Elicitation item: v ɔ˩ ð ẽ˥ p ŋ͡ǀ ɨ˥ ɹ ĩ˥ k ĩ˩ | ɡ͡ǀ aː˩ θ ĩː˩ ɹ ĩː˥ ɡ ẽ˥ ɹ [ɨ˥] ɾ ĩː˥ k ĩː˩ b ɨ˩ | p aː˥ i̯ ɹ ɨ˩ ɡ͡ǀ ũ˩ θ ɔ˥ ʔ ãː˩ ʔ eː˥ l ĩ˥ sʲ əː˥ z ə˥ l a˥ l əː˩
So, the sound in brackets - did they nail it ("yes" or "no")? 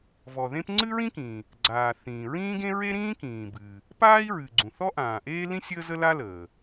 no